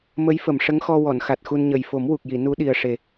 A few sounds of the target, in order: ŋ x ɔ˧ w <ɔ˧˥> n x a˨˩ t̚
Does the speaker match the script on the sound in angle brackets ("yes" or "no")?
no